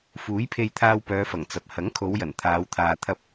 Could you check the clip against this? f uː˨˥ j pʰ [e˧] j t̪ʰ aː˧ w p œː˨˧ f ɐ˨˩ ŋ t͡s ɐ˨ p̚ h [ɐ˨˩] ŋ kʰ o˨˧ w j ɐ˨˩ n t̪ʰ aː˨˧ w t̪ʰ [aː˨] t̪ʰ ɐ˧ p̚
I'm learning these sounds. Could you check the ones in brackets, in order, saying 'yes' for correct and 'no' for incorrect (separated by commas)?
yes, no, yes